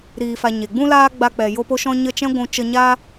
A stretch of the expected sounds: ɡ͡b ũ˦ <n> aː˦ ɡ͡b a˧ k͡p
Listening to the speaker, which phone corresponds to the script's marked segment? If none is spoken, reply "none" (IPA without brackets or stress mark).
l